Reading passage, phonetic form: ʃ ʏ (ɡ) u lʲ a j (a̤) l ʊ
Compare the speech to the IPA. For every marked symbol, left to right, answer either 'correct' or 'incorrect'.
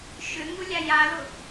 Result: incorrect: ŋ, incorrect: a

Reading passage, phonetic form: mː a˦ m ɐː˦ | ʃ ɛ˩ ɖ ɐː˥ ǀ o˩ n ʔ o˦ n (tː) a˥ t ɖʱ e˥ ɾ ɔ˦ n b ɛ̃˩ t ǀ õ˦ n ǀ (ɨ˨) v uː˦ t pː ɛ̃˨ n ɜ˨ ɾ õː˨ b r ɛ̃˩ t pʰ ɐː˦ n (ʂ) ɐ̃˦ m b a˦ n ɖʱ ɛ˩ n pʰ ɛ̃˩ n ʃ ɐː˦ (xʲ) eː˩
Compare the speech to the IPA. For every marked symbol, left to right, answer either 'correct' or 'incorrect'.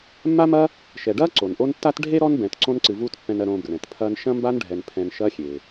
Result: correct, correct, incorrect: ʃ, correct

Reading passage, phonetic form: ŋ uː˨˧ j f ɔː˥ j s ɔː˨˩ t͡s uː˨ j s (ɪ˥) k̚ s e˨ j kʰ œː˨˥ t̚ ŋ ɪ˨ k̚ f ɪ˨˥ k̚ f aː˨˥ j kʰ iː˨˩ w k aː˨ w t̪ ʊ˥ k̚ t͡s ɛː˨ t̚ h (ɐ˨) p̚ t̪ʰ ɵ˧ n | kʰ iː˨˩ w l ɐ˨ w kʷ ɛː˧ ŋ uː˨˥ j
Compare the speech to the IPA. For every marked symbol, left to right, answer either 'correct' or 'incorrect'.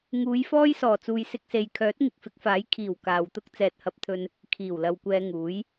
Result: incorrect: ɪ˧, incorrect: ɐ˧

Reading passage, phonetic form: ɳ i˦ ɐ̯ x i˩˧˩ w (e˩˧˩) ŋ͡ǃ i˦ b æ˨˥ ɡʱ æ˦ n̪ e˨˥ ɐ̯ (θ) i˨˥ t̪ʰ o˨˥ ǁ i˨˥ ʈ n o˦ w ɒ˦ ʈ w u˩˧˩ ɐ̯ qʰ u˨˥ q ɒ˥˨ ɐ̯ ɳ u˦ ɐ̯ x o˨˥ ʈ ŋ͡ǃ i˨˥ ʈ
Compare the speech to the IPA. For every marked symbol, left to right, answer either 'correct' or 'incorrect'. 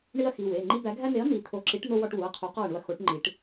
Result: correct, incorrect: n̪

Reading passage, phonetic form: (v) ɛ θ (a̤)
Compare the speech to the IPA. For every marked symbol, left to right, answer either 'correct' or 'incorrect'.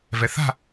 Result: correct, correct

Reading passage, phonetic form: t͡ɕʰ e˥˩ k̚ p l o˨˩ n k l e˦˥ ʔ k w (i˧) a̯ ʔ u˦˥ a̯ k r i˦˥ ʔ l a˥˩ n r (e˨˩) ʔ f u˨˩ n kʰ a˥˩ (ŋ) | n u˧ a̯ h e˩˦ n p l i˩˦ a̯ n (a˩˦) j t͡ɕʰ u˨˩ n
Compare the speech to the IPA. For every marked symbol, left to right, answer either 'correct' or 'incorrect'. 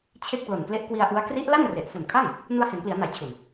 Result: correct, correct, correct, correct

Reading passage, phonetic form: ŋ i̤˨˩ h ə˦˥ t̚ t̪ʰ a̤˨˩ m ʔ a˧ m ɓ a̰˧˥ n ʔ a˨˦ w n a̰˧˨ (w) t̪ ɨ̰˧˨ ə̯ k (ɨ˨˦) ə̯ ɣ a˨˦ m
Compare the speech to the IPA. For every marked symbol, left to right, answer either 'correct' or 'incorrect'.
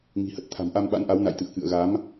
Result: incorrect: j, incorrect: ɨ̰˧˨

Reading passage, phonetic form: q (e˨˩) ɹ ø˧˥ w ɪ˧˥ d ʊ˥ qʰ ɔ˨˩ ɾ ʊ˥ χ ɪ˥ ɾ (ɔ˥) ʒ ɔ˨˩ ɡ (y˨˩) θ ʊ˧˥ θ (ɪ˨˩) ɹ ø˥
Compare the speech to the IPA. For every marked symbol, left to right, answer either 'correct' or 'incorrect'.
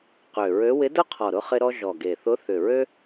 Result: incorrect: ø˨˩, correct, incorrect: e˨˩, incorrect: ʏ˨˩

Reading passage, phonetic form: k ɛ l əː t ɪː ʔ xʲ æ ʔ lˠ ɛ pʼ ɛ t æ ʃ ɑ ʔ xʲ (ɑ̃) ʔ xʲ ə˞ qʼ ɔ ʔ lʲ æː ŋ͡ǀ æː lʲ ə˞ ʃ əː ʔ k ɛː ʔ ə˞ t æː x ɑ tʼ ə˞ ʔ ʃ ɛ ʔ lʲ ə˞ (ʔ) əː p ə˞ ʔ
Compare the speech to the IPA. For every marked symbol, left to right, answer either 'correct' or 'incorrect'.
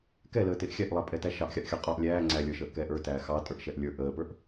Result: incorrect: ɑ, correct

